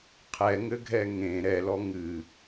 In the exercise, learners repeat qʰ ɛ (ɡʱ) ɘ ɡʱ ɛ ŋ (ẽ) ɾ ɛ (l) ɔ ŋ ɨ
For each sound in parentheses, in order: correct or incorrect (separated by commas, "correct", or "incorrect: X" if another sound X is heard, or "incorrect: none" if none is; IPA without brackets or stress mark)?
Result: incorrect: ŋ, correct, correct